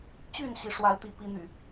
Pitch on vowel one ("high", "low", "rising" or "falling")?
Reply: falling